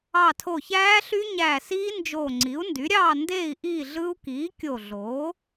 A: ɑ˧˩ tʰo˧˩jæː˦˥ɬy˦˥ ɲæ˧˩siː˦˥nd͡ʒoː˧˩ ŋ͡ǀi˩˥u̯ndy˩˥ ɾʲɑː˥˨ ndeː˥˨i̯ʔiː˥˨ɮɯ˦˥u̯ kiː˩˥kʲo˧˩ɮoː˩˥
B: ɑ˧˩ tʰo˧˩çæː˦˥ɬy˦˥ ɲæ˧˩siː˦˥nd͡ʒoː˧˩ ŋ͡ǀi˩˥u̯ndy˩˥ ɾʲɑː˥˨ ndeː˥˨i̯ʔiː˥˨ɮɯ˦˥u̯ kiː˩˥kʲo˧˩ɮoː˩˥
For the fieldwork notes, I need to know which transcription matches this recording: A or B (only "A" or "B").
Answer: B